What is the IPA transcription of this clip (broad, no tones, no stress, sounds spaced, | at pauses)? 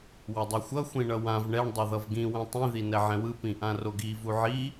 w ʌ dˤ ʌ xʷ ʌ xʷ ĩ ɳ ʌ w ã v ɳ ɛ ɳ dˤ o ð ʌ v ɡ ĩ w ɛ̃ tˤ ĩ ð i n ɛ ʕ ɛ̃ w ɯ p ĩ ʔ ã r o ɡ i v u ʕ i